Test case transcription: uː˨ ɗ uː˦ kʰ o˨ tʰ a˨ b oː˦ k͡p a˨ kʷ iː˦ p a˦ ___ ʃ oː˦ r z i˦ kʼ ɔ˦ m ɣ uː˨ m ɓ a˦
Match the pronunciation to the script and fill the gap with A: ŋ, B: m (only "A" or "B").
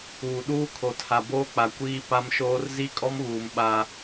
B